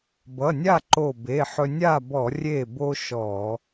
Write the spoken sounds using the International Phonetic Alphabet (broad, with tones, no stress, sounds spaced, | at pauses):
b ʌ˩˧˩ nʲ a˥˨ ǃ o˧˩ b e˩˧˩ ħ ɵ˧ nʲ a˥˨ b ɔ˧˩˧ rʲ e˥˨ b o˥ ʃ ɔ˧˩˧